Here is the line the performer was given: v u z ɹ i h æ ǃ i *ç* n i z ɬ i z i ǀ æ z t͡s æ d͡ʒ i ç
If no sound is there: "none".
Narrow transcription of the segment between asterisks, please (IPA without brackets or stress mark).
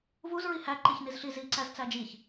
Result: ç